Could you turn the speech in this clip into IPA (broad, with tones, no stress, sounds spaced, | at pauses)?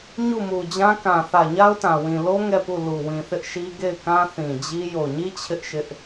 ɲ u˦˨ m u˨ d͡ʑ ã˦ k ã˨ θ ä˨ ɲ a˦ ʊ̯ t ã˨ w ĩ˨ l o˦ ŋ ɛ˦˨ p u˦˨ l u˨ w ĩ˨ θ ɪ˦ ʔ ʃ i˦ ɡ e˦˨ ɪ̯ k ã˦ θ ĩ˨ d͡ʑ i˦ j o˨ ɲ i˦ t͡ɕʰ ɪ˦ ʔ ʃ ɪ˦ ʔ